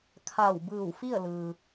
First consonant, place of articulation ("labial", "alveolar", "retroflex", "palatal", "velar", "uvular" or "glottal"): velar